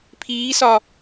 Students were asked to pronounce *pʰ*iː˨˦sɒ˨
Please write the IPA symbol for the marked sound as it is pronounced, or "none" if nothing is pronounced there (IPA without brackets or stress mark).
pʰ